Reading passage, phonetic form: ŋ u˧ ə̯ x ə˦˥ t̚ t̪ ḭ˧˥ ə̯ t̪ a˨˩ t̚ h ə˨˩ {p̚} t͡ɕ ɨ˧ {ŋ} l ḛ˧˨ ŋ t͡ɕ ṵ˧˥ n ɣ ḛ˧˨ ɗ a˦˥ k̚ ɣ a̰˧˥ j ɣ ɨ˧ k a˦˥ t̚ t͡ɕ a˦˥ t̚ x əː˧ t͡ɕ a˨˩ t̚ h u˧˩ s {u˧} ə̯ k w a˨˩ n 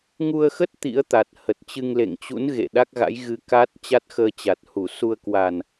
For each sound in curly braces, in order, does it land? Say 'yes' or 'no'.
no, yes, yes

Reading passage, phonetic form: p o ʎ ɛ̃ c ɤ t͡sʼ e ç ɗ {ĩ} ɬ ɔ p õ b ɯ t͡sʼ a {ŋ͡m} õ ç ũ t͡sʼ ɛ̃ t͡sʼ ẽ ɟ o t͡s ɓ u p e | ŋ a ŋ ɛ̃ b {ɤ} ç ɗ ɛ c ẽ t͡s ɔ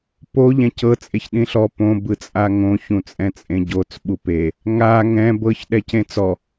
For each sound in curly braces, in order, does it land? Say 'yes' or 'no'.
yes, no, yes

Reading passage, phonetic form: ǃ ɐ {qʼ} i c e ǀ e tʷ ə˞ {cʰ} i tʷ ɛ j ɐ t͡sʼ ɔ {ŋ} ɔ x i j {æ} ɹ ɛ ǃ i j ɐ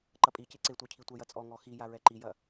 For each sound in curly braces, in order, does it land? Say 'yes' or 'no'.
no, yes, yes, no

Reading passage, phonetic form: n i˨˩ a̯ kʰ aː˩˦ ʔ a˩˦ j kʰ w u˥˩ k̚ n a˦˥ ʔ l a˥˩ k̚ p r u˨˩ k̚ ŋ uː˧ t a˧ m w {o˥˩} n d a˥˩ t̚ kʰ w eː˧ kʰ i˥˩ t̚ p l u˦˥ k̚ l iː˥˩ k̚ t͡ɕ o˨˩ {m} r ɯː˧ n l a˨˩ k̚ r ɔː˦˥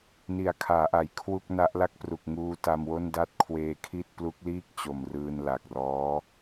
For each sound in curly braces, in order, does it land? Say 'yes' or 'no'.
yes, yes

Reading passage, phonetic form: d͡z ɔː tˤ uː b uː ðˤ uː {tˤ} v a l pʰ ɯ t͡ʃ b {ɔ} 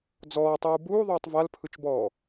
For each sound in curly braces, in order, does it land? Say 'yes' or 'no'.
yes, no

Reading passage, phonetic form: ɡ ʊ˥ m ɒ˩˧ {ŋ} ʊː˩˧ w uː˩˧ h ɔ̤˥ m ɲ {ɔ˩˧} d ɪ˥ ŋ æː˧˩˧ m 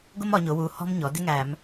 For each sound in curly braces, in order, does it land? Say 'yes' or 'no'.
no, yes

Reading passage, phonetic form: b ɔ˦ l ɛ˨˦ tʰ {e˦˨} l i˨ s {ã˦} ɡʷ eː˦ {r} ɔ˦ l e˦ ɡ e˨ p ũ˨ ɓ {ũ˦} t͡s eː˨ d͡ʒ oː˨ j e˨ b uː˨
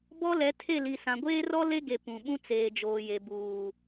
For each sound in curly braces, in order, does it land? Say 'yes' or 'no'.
yes, no, yes, yes

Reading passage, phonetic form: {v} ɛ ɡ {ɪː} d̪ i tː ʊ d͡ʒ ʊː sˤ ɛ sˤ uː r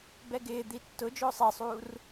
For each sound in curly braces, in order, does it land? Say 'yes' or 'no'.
no, yes

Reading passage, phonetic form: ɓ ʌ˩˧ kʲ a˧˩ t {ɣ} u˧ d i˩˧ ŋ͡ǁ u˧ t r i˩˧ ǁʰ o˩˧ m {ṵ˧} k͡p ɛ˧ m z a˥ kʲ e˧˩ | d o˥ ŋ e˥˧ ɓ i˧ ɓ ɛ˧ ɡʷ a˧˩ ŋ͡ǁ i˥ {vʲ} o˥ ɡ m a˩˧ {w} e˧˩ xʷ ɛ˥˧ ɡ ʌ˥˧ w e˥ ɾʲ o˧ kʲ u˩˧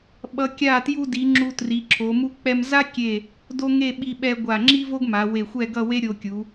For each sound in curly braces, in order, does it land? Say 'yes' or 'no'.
no, no, no, yes

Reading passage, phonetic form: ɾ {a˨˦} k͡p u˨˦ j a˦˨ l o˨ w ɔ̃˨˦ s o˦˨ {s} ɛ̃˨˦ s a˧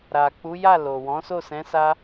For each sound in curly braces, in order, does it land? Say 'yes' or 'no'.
no, yes

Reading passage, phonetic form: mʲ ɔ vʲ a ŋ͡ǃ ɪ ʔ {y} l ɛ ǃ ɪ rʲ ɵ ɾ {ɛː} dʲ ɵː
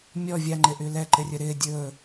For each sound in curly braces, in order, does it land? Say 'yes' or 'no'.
yes, no

